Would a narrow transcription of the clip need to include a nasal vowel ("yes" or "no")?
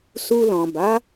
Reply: yes